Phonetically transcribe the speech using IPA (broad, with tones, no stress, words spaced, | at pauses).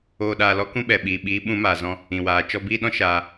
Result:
oː˧ɗaː˧lɔ˦ kũ˦ɓɛ˨ ɓiː˨ɓiː˨˦ ɓũ˨˦maː˨ zɔ̃˦ | ĩ˨waː˨ t͡ʃɔ˧biː˦ ɗɔ̃˦ ʃaː˧